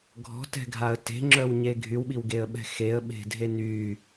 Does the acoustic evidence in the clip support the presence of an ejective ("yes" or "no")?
no